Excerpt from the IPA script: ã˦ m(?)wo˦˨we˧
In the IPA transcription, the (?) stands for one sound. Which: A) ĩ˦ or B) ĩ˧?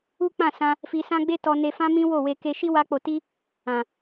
A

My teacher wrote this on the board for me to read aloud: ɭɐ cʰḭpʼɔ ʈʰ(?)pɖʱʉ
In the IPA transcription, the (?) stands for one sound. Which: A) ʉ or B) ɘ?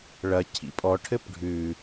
B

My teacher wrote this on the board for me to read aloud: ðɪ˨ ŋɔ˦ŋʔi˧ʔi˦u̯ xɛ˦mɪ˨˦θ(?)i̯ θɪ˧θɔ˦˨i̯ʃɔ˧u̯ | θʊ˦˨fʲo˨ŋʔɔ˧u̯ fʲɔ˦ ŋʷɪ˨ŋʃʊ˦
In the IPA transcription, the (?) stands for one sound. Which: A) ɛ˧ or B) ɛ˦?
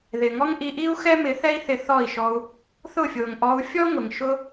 B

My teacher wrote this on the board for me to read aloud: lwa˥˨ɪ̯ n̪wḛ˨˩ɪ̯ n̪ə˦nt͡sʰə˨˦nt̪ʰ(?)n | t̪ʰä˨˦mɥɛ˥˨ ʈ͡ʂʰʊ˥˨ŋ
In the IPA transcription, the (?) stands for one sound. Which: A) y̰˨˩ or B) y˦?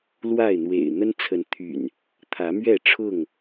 A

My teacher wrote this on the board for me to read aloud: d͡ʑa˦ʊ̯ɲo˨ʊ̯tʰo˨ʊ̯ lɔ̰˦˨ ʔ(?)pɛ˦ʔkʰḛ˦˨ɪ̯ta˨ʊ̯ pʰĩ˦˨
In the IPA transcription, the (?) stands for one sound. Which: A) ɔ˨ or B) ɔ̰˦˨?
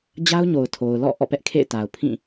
B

